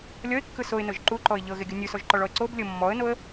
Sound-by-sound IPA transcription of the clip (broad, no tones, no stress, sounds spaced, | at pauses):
lʲ ɔ ɪ̯ kː ɯ s o ɪ̯ n ɤ ʒ ǃ u ǃ ɔ ɪ̯ ʎ ɤ ɣ e ɡʲ u nʲ u s ɔ ʒ ǃ ɔ ɭ ɔ ə̯ ǀ o b lʲ ɤ mː ɔ ə̯ n o ə̯